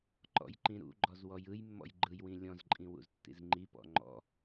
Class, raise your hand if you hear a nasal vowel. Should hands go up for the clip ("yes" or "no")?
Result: yes